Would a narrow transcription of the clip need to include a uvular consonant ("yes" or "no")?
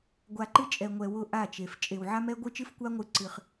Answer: yes